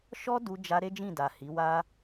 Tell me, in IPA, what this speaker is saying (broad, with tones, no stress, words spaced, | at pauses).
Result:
ʃɔ˦du˧d͡ʒa˧ ɾe˦d͡ʒĩ˦˨da˨ hi˨˦wa˦